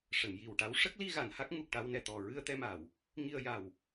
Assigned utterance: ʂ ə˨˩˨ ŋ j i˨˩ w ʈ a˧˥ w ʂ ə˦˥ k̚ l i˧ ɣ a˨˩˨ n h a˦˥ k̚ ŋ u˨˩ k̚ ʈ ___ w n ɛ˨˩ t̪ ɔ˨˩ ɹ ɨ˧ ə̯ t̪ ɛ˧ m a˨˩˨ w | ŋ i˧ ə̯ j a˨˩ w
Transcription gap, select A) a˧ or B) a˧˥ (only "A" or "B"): A